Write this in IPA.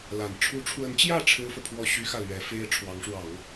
l a˨˩ n ʈ͡ʂʰ u˧˥ ʈ͡ʂʰ w ə˧˥ n t͡ɕ j ä˥˩ ʈ͡ʂʰ ɻ̩˥ f ɤ˨ pʰ w ɔ˥˩ ɕ y˥ x ä˥˩ l ɥ ɛ˧˥ f e˥ ɪ̯ ʈ͡ʂʰ w ɑ˧˥ ŋ ʂ w ɑ˨˩˦ ŋ

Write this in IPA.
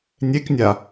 nʲ e k nʲ a

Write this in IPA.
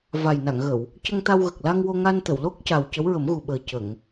v a˨˩ j n a˨˩˨ ŋ ɣ ə˨˩˨ w | c ə˧ ŋ t̪ a˧ w ɣ ə˨˩ k̚ l a˧ ŋ w o˧ ŋ a˧ n t̪ ə˨˩˨ w l o˦˥ k̚ c a˨˩ w c ə˧˥ w ɹ ə˨˩˦ m ɣ u˨˩ ɓ əː˨˩ c ə˨˩˨ ŋ

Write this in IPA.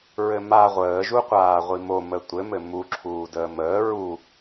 ɹ ɘ m a ʁʷ əː ʒ u qʷ aː ʁʷ i m o m ə tʷ ɘ m ɘ m u ǁʰ uː d əː m əː ɹ u

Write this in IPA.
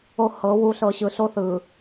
o˨ h ɤ˨˦ w u˨ ɬ ɤ˨ ɕ ɯ˨ ɬ o˦ θ ɯ˨

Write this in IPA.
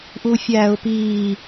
ʔ u fʲ æː ʊ̯ p iː

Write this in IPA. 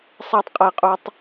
sˤ æ˦ tˤ qʼ æ˦ qʼ u˦ tˤ

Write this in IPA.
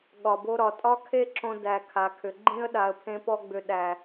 ɠ ɒ˨ b o˧ ɾ ɒ˨ tʼ ɒ˦ kʰ e˦ ǁ õ˧ d æ˨ kʰ a˨ kʰ ʏ˨ ɡ͡ǃ ĩ˦ ə̯ ɗ a˨ ə̯ pʰ ẽ˧ p ɔ˧ ɡ͡b ʏ˨ ɗ æ˨

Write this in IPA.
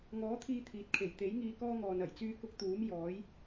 ŋ ɔː˨˥ t̪ʰ iː˧ t̪ʰ iː˨˥ t̚ kʰ e˨˩ j t̪ e˨˥ j ŋ iː˧ k ɔː˥ ŋ ɔː˨ n ɐ˨˩ j t͡s yː˥ k ʊ˥ k̚ t̪ uː˨˥ m j ɔː˨˥ j

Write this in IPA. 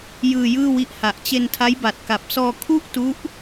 j ɯː˧ j ɯː˥˩ w i˦˥ ʔ h a˨˩ ʔ t͡ɕ e˧ n tʰ a˦˥ j b a˨˩ t̚ k a˨˩ p̚ s ɔː˧ kʰ u˥˩ ʔ t u˦˥ ʔ

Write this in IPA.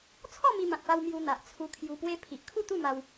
t͡sʰ ɔ˥˧ m i˧ m ã˨ t̚ p a˧ w m j u˧ n̪ a˨ ʔ t͡sʰ u˧ kʰ j u˧ p w e˦ pʰ i˨ ʔ kʰ u˥˧ t̪ u˥˧ m a˧ w

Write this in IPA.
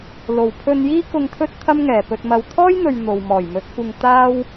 l o˨˩ w pʰ ɵ˧ n j iː˥ k ʊ˧ ŋ t̪ʰ ɵ˥ t̚ t̪ʰ ɐ˥ m ŋ ɛː˨˩ p ɵ˨ t̚ m ɐ˨ w t̪ʰ ɔː˥ j n̪ ɵ˨ ɥ n̪ o˨ w m ɔː˨˩ j m ɵ˨˥ t̚ kʷ ɪ˧ ŋ t̪ aː˥ w

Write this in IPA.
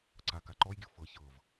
ǀ a k a ǃ ɔ j ɡʲ ɯ f ɤ ç ɤ v

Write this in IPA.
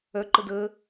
œ ǃ ə d ə

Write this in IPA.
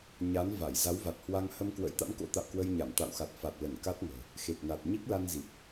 ɲ a˨˦ n v a˧˩ j z a˨˦ w v a˨˩ t̚ h w a˧ ŋ h ə˧ m k w ə̰˧˥ j t̪ a̰˧˥ m k o̰˧˥ t̪ a̰˧˨ w k w ə˧ j ɲ a˧˩ m t̪ a̰˧˨ w x a˨˩ t̚ f a˨˩ t̚ l ə˧˩ n k a˦˥ t̚ ŋ ə̤ː˨˩ | x e˨˩ k̚ n a˨˩ t̚ ɲ i˦˥ k̚ l a˧ n z i˨˩ p̚

